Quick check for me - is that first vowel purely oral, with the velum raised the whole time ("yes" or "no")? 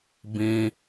no